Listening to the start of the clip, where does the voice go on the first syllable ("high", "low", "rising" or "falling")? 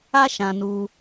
high